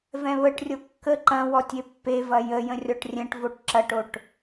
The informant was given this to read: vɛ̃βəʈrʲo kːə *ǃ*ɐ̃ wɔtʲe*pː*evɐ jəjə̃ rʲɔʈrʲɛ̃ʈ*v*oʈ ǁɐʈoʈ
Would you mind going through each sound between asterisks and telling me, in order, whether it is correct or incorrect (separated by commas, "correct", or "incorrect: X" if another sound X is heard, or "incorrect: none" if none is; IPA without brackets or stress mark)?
correct, correct, correct